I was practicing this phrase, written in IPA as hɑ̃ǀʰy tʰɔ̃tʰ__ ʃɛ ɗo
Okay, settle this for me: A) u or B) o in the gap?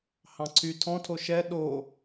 B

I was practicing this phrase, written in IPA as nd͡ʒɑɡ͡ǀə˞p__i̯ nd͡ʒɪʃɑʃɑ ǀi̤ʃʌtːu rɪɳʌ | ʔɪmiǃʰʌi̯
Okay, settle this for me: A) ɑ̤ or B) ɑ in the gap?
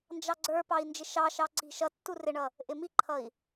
B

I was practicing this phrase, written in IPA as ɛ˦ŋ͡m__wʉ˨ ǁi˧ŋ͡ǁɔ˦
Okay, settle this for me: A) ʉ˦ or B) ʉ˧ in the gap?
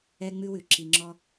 A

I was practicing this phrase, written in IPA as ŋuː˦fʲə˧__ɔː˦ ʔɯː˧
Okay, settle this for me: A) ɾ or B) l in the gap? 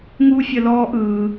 B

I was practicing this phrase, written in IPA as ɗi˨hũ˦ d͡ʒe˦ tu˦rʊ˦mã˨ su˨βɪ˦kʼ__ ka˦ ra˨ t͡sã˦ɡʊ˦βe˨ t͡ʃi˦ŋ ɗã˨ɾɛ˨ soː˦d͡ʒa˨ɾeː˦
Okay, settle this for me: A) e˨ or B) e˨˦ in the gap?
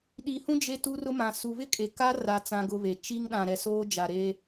A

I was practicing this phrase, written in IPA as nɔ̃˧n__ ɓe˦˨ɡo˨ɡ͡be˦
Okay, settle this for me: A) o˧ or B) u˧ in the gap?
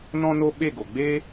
A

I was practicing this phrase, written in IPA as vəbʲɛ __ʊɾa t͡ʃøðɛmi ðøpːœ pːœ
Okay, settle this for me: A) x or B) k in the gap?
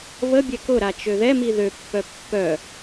B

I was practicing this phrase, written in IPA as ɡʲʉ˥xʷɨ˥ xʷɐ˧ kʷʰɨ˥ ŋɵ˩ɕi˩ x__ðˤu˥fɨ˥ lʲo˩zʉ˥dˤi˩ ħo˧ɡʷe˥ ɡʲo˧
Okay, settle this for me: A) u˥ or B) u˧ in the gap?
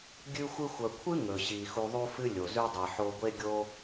B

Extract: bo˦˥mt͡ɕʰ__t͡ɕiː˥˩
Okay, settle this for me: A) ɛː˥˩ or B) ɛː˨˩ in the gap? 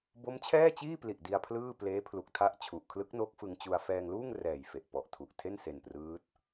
A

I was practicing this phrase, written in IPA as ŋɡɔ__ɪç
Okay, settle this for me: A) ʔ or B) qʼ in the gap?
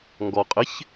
B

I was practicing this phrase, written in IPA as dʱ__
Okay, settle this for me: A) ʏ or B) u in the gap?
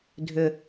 A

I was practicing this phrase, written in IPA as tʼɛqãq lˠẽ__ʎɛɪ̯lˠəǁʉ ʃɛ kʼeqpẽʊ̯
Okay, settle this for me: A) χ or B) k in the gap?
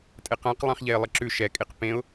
A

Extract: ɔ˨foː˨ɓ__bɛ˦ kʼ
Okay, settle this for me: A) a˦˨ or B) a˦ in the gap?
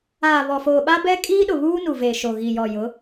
B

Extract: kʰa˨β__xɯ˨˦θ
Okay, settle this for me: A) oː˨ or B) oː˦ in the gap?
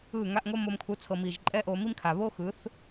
B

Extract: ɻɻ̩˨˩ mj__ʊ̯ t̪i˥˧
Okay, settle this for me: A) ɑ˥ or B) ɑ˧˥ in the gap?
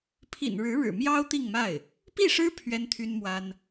A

